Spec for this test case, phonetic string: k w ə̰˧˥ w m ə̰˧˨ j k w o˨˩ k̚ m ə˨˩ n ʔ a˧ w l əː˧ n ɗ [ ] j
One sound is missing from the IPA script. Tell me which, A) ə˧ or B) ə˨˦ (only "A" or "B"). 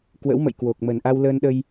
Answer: A